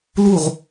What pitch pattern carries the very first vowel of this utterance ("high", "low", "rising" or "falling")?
falling